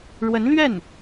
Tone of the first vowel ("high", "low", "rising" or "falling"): rising